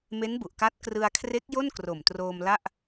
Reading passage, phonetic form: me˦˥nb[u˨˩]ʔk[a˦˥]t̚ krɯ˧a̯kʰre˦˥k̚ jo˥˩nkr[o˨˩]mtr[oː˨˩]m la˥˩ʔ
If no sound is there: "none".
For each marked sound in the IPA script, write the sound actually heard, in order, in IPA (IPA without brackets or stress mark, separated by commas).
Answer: u˨˩, a˦˥, o˨˩, oː˧